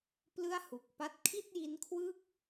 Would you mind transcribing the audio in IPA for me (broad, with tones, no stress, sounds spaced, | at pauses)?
p l ɯ˥˩ a̯ h u˨˩ k̚ p a˥˩ t̚ kʰ i˥˩ t̚ j i˦˥ n kʰ w ɯ˥˩ k̚